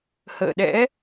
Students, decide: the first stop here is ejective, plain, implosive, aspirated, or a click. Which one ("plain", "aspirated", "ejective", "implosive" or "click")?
implosive